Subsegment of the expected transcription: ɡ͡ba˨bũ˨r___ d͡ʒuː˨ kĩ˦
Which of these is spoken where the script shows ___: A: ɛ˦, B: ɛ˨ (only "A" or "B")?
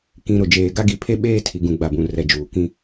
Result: B